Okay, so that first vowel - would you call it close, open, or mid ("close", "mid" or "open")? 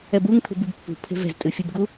mid